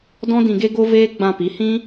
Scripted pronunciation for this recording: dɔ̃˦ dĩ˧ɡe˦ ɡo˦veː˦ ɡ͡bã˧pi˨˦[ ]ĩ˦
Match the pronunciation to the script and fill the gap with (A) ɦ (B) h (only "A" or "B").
B